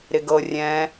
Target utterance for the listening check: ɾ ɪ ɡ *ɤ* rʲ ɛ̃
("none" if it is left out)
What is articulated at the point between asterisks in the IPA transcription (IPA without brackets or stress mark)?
ɤ